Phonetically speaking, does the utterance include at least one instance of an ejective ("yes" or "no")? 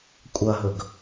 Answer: yes